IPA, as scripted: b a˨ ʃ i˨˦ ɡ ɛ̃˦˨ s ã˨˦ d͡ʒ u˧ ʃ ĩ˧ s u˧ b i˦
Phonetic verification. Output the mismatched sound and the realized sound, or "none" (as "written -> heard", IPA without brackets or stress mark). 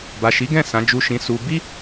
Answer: none